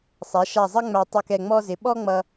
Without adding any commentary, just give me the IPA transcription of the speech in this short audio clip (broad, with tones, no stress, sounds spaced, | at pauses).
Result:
sˤ æ˩˧ ʃ a˧˩ zˤ ə˥ ŋ͡m æ˧ tˤ ʌ˧˩ k ɛ˧˩ ŋ͡m ɔ˧ z ɪ˩˧ ɓ ɔ˥ ŋ͡m ʌ˧